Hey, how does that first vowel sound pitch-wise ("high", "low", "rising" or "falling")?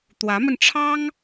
rising